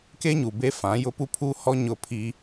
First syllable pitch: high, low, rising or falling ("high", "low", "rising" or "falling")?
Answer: high